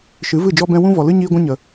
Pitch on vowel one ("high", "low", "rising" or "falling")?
rising